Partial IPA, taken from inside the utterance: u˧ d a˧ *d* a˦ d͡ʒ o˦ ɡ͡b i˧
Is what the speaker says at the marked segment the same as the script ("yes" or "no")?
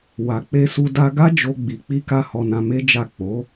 no